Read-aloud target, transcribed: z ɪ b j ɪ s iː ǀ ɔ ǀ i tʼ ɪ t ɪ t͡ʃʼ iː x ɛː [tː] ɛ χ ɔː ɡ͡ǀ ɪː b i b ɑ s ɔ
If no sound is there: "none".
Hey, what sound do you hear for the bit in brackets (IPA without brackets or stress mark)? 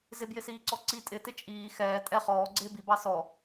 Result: tʼ